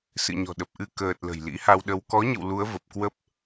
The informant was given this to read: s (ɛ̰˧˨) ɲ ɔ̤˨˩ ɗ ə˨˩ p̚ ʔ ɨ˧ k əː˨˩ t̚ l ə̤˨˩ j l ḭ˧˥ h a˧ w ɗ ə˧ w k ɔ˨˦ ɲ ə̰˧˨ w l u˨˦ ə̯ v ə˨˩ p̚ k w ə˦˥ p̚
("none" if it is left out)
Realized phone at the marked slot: ɨ̰˧˨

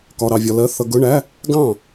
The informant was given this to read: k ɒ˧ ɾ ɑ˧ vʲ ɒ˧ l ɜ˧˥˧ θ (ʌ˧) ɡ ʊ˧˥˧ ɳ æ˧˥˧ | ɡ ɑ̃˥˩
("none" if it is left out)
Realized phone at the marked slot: ʌ˧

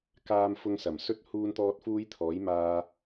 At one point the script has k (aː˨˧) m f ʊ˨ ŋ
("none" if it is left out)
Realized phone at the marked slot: aː˨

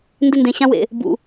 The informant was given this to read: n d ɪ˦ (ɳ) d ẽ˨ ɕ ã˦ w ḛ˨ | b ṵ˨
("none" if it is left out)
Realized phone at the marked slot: n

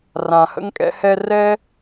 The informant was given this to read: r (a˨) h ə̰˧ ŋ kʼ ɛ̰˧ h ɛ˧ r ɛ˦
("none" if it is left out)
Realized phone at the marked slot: ã˨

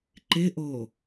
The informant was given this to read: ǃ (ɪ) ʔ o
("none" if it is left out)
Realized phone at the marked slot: ɪ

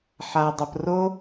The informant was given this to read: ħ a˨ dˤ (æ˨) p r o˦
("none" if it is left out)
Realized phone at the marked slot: ə˨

